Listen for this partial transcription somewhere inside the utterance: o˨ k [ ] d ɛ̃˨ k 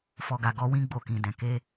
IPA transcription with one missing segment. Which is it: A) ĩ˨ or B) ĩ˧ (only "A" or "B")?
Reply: A